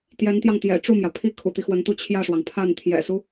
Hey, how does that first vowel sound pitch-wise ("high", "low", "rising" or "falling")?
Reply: rising